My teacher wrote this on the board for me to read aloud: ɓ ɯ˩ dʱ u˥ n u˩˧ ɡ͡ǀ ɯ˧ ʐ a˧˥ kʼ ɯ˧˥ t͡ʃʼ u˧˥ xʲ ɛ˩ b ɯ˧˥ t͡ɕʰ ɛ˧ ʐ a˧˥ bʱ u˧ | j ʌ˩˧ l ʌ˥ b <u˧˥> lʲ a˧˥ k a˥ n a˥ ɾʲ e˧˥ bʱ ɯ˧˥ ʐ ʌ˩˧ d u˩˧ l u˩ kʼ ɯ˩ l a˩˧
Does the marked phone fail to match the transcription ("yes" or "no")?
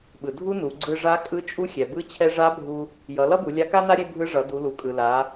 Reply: yes